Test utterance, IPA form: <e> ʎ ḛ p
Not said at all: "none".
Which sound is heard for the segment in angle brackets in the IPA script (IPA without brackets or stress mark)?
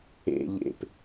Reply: ḛ